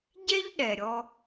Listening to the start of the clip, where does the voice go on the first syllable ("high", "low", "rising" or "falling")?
high